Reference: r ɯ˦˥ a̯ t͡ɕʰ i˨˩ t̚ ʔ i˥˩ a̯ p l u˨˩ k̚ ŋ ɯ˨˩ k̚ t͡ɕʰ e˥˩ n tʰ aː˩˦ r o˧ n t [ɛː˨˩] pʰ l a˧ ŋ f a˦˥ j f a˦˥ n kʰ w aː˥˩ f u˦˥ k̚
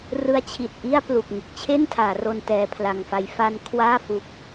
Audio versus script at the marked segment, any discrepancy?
yes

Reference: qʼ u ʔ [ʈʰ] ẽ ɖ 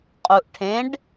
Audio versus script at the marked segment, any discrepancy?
no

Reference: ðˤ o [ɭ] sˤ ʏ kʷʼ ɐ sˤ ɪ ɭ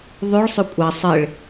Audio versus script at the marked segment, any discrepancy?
no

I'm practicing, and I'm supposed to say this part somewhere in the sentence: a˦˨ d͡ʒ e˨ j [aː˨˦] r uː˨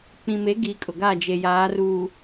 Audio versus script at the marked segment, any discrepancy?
no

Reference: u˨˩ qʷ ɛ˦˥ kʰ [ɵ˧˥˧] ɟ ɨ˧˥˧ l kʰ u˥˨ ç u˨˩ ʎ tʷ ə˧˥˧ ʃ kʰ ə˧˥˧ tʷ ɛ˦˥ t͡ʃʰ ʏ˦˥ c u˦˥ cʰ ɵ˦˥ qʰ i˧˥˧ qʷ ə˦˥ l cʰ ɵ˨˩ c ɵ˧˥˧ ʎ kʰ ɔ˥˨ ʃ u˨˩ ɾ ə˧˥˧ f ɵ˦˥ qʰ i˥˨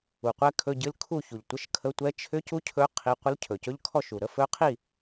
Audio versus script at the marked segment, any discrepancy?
no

